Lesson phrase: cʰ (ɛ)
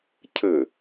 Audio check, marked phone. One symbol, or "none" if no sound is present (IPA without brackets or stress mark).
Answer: ɘ